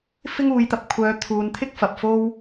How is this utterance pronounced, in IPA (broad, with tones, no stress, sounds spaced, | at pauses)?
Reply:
f ɪ˥ ŋ uː˨˧ j t̪ ɐ˧ p̚ kʷʰ œː˨˧ t̪ʰ uː˨˧ n t̪ʰ ɪ˥ k̚ f ɐ˨ p̚ f o˥ w